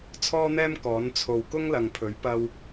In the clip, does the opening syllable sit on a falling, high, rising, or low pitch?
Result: high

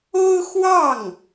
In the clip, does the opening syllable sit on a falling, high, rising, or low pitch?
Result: high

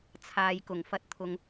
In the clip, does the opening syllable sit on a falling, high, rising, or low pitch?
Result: low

